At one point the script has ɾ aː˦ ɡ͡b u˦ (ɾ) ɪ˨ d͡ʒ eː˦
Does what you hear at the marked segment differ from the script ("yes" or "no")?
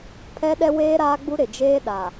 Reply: no